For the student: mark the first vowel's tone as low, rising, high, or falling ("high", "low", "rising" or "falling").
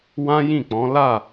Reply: high